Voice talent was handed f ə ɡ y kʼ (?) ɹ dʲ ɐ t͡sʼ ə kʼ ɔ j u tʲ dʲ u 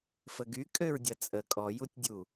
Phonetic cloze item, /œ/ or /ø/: ø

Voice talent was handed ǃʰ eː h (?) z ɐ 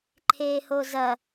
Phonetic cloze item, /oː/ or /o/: o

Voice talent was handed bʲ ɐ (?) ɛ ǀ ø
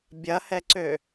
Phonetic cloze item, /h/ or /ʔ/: h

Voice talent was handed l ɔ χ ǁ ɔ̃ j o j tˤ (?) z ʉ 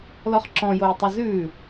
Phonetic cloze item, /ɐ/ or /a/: ɐ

